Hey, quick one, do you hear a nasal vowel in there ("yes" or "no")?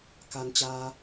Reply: no